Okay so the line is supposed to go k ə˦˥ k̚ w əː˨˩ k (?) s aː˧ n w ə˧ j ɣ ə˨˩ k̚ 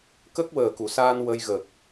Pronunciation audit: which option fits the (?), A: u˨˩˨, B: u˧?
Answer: A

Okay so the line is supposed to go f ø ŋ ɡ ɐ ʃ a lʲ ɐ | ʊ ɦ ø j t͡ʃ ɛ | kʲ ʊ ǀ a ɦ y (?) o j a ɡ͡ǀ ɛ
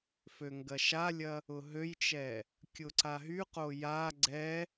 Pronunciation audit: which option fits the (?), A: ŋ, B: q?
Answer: B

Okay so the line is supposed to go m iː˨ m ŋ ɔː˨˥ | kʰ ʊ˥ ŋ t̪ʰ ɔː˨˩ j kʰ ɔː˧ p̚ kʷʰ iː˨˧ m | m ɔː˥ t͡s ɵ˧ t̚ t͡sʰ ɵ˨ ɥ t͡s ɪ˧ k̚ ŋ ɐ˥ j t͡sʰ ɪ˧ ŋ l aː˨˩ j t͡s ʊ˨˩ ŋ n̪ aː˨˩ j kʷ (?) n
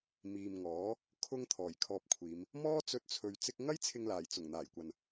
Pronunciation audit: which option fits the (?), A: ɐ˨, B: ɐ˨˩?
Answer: A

